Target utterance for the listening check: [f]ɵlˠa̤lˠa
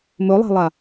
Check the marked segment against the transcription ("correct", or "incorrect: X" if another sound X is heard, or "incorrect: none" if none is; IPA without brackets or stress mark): incorrect: m